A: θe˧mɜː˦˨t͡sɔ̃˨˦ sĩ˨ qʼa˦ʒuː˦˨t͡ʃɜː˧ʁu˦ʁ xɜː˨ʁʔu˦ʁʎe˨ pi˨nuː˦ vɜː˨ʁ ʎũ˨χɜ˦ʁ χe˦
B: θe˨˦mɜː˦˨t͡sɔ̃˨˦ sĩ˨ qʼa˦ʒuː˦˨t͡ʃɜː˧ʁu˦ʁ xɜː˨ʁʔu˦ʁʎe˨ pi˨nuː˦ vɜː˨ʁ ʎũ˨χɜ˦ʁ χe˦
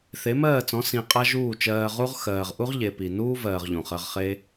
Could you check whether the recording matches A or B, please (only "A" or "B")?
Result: B